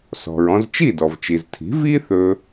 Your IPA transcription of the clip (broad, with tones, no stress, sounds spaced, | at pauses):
s ɔ̤˩ ɹ ɔ̃˧ z t͡ʃ i˥˩ d ɔ˩ v t͡ʃ i˩ z tʰ i̤˩˥ v i˥ θ ɵ˧